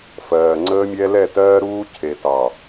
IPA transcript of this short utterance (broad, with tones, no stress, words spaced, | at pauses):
fɜː˨ŋ͡ǀəː˦mʲɛ˦ lɛ˦˨tɜː˦ɾuː˦ cʰe˨tɑ˨